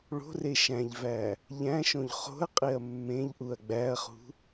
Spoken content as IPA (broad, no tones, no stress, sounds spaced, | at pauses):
ɭ o̤ r e ʃ æ̃ ʎ v æ | ʎ æ̃ ʃ õ ʎ χ o̤ ɐ̯ qʼ e ɐ̯ mː ẽ ʎ ʔ u ɐ̯ ɡ͡b æ ɐ̯ χ ṳ